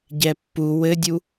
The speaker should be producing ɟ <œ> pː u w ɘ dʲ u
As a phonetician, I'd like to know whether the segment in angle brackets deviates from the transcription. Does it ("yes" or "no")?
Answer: yes